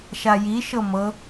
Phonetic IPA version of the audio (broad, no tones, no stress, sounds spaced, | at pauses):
ʃ a j i ʃ ɤ m ɤ